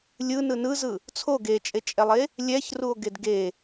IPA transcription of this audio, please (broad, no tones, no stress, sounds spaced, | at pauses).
lʲ ɯ n ɯ n ɯ z ɯ | t͡sʰ o ɡ e t͡ʃʼ e t͡ʃʼ ɛ lˠ e | lʲ ɛ ç r u o̯ ɡ e d ɡ e